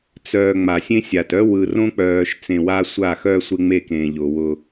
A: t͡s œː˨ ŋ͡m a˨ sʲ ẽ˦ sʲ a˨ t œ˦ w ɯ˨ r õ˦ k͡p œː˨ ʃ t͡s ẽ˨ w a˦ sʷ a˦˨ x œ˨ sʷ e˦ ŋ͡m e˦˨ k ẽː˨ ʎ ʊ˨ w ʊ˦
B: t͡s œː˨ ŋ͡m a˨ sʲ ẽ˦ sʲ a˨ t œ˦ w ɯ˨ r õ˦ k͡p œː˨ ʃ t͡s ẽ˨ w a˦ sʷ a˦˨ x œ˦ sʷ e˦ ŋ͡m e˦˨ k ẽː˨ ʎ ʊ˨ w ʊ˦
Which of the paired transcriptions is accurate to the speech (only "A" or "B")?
B